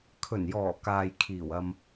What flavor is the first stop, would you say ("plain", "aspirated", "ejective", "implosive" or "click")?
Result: aspirated